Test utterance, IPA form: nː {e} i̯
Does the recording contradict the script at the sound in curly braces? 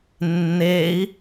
no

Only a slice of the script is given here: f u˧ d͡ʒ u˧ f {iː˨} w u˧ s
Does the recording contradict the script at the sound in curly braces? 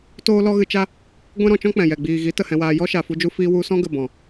yes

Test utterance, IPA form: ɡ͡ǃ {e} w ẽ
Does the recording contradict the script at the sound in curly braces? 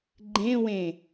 yes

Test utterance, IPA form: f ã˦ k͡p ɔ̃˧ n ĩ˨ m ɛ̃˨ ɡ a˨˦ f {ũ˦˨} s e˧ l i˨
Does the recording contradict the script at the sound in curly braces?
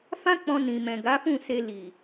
no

